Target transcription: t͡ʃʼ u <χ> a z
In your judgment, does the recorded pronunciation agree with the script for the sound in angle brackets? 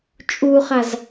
yes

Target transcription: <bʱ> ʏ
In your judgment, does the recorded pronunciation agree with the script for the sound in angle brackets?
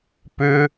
no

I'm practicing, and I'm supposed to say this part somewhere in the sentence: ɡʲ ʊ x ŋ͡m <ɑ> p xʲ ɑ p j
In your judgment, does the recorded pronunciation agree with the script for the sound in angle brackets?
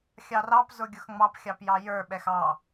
yes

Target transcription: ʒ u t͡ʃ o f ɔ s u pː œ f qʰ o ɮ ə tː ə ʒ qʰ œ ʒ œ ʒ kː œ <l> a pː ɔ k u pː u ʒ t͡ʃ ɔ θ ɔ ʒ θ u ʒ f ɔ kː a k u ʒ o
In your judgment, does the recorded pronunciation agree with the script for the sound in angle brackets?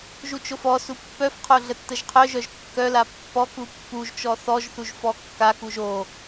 yes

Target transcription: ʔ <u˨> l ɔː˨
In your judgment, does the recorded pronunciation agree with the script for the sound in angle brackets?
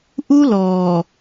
no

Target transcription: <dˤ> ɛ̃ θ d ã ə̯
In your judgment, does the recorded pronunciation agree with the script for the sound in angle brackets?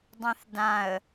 yes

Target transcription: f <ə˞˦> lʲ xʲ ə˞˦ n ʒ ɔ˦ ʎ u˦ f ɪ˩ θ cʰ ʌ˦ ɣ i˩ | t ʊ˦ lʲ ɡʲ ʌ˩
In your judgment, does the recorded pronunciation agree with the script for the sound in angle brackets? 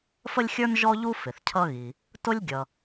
no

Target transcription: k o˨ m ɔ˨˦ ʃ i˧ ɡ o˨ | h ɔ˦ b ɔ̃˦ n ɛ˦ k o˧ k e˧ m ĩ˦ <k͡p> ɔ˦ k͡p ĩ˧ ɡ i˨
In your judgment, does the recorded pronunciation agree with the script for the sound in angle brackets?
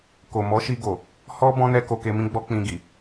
no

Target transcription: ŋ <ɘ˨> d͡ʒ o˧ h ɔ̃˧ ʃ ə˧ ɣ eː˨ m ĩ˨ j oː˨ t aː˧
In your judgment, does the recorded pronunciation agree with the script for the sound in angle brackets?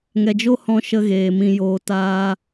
no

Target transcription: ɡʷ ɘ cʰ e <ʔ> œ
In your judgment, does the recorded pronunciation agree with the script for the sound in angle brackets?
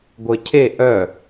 yes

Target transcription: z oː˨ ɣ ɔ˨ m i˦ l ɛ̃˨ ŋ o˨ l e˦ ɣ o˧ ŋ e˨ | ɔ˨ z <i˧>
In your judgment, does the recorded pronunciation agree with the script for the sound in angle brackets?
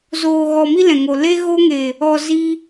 yes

